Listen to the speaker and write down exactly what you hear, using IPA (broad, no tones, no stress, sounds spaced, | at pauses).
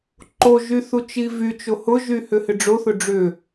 ǃ o ʒ y θ u t͡ʃ i v y t͡ʃ o h ʊ ʒ y h ʏ h ɪ ɖ͡ʐ o θ ʊ ɖ͡ʐ ʏ